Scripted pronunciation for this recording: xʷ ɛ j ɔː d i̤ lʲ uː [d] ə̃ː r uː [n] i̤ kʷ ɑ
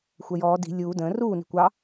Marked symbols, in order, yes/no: yes, yes

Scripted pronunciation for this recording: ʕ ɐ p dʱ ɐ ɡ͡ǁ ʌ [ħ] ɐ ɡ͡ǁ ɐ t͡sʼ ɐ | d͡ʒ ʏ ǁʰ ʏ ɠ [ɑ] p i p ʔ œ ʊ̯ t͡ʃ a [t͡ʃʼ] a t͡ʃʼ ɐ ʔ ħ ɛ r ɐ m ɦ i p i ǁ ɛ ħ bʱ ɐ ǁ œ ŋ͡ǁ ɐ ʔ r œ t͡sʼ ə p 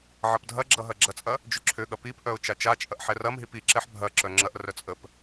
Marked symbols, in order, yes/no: no, no, no

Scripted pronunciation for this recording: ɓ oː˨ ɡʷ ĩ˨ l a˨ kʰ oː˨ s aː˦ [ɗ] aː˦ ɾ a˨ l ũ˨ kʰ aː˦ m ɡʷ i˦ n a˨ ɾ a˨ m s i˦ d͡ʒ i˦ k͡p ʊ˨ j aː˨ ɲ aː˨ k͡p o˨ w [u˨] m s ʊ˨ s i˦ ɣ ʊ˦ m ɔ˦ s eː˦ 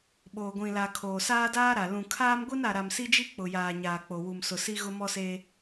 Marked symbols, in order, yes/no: no, yes

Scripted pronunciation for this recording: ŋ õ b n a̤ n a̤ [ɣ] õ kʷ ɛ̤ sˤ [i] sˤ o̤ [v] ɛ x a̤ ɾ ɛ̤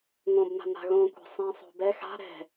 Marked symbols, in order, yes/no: yes, no, no

